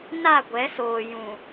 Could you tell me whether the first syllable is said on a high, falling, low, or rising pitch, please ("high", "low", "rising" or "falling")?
falling